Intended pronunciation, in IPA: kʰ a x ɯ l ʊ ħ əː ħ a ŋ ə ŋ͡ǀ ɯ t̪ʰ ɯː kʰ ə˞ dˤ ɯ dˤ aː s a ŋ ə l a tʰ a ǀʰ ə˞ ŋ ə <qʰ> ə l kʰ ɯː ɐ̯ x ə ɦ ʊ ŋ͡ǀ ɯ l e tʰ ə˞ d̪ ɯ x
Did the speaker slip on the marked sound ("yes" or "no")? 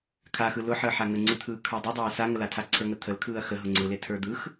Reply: yes